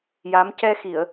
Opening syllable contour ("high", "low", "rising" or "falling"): rising